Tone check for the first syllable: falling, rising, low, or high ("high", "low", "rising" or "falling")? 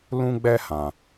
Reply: high